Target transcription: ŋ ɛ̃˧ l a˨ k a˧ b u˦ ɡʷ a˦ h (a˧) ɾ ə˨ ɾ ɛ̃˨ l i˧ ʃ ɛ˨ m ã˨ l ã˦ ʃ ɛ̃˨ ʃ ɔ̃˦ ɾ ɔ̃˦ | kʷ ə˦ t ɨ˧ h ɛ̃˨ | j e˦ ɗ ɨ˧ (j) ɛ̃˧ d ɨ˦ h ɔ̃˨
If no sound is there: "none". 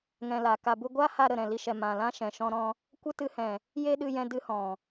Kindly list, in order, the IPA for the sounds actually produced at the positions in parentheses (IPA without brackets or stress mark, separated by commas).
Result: a˧, j